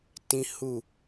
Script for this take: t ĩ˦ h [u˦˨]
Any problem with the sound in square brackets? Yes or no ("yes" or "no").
no